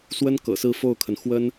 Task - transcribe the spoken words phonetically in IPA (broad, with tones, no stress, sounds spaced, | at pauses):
s w ə˥ n k ɤ̰˨˩ s ɹ̩˥˧ f o˥˩ ʊ̯ kʰ ə˩ n x w ə˥ n